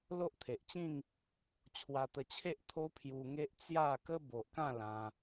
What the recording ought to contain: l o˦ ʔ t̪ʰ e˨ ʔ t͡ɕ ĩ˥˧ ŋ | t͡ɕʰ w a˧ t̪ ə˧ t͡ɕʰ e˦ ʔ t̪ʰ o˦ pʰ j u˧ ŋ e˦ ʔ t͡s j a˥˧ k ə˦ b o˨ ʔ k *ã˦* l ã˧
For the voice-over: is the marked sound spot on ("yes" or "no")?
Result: no